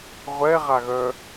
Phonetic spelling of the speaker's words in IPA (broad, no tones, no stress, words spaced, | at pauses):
ʁʷɛʁaɣœː